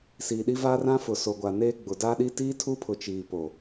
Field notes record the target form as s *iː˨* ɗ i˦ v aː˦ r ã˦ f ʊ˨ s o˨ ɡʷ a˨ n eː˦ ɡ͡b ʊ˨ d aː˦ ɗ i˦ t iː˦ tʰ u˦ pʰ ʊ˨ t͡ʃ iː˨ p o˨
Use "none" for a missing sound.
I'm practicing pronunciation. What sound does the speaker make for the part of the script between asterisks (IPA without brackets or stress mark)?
iː˨